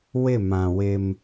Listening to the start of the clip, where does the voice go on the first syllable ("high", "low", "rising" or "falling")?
falling